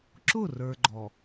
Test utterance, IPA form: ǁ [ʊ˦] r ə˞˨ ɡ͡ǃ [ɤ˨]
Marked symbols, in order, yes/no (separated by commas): no, no